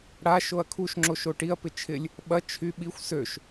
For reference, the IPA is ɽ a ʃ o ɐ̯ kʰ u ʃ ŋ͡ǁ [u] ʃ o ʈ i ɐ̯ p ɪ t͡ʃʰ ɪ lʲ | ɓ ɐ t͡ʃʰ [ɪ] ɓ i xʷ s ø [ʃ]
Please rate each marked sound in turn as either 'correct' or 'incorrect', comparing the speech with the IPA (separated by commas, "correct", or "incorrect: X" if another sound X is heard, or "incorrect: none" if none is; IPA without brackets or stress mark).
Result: incorrect: o, incorrect: y, correct